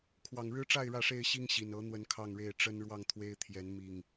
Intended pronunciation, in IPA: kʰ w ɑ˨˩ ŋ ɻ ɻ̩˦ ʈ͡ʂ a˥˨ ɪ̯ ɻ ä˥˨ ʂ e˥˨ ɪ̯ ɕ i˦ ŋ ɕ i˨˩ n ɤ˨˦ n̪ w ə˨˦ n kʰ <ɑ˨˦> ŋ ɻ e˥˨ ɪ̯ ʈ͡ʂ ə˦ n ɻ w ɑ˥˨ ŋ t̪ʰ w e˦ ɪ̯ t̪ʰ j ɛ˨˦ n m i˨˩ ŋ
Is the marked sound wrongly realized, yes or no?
yes